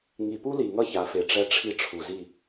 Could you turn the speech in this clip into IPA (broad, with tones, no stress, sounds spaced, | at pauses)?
ŋ i˨ p u˦ l i˨ ŋ ʌ˦ ç a˨˦ f e˨ ʈ͡ʂ ɛ˦ ʈ͡ʂʰ i˦ ʈ͡ʂʰ u˨ z i˦˨